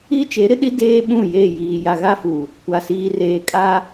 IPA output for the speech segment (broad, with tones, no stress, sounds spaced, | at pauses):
i˦ t͡ʃ e˨˦ ɾ ɪ˦ ɗ i˦ d eː˦ ɓ ũ˦˨ j e˦˨ j iː˨ j a˨ ɣ a˦ f u˨ | kʷ a˨ s iː˨ r eː˨ kʼ a˦